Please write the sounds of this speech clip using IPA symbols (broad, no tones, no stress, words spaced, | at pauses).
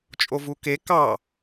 t͡ʃʼovuke kɑ